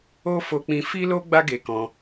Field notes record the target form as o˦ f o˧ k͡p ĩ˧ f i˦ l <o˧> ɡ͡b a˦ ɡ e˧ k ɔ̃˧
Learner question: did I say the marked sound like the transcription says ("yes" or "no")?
no